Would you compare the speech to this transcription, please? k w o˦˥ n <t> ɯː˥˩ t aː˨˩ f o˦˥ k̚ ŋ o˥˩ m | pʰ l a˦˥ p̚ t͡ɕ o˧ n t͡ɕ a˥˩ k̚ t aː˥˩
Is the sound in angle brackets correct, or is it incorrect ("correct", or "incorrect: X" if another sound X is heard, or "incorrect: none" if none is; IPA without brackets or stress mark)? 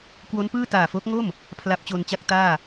incorrect: p